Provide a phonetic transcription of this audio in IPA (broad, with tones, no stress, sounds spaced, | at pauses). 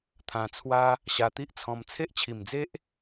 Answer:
t̪ʰ ã˧ t͡sʰ w a˦ | ɕ a˧ t̪ i˦ ʔ t͡sʰ ɔ̃˧ m t͡sʰ e˦ ʔ t͡ɕʰ i˨˩ m d͡z e˦ ʔ